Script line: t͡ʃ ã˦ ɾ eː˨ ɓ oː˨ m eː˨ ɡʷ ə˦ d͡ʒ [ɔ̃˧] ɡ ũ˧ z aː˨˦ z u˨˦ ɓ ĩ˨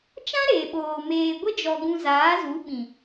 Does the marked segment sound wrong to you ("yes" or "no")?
yes